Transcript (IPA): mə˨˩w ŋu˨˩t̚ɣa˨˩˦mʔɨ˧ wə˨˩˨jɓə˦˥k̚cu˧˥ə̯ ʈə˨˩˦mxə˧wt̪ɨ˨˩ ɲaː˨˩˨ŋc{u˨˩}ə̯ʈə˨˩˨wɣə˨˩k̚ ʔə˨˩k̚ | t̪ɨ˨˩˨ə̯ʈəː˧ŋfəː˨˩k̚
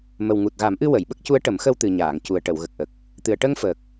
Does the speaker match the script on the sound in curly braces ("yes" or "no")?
yes